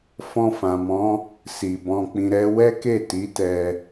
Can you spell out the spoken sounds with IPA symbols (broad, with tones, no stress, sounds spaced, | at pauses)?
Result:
f ɔ̃˧ f ã˨ m ɔ̃˨˦ | s i˨ b ɔ̃˧ k͡p ĩ˧ ɾ ɛ˦ w ɛ˦ k e˦˨ t i˨˦ t ɛ˧